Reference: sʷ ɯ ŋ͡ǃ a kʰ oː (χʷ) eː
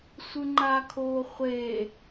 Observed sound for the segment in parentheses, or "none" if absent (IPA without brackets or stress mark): χʷ